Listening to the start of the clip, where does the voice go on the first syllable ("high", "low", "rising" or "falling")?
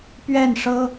falling